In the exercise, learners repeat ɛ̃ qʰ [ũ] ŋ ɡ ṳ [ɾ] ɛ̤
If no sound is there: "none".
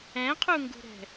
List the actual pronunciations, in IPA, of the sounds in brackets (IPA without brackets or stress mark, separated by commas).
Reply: u, ɾ